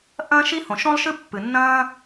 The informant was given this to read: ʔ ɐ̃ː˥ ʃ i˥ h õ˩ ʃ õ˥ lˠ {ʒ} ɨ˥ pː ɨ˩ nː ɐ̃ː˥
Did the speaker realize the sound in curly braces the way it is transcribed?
no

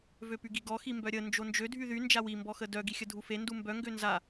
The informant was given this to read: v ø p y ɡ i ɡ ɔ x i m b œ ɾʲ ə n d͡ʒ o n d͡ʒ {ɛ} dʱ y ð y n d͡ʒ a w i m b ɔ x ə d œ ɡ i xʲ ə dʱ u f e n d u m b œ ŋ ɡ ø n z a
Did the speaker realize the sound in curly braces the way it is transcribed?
no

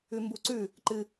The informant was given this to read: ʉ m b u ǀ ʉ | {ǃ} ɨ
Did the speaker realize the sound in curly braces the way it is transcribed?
yes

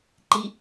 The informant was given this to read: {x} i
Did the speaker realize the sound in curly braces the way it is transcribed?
no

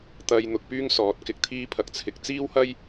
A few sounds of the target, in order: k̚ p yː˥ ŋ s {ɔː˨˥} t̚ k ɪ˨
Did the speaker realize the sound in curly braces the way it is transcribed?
yes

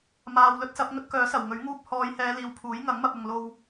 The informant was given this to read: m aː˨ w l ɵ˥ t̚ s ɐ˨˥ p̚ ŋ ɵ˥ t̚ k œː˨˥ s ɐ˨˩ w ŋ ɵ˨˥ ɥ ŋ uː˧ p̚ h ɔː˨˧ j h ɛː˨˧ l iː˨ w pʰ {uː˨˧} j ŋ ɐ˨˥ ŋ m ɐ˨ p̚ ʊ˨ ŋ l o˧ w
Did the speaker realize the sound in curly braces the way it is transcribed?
no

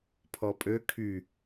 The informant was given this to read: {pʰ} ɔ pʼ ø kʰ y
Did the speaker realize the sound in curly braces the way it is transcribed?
yes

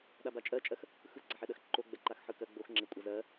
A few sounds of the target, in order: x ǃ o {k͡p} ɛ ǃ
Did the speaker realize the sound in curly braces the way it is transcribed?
no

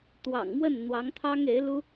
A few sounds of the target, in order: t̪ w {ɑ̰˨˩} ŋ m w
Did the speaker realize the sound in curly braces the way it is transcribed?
yes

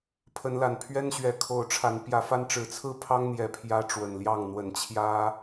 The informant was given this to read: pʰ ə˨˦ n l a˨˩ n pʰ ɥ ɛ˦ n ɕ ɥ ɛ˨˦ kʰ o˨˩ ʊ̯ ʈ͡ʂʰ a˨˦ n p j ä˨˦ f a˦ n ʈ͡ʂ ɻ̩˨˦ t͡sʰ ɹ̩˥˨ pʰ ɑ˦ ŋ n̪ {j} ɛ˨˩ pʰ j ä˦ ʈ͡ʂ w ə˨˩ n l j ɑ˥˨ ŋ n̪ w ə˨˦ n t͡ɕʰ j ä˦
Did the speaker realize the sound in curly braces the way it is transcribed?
yes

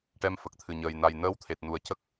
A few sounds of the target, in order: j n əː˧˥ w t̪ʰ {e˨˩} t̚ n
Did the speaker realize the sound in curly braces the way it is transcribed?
yes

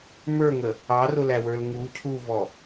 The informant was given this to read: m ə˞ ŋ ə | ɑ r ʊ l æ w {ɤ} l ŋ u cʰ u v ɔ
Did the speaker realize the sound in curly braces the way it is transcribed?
no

